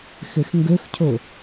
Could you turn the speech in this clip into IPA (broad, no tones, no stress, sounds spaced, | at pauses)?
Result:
x ɘ x ŋ ɡ ɵ x cʰ o